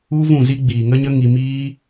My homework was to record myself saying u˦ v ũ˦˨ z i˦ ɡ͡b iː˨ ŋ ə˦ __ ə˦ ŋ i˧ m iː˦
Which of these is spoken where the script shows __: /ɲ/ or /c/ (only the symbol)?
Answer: ɲ